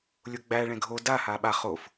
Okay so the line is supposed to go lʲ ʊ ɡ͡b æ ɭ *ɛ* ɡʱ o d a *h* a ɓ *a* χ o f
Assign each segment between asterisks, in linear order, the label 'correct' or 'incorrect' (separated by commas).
incorrect, correct, correct